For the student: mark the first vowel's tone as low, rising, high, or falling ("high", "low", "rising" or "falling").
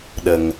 low